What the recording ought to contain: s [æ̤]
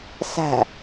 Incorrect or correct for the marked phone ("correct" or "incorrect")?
correct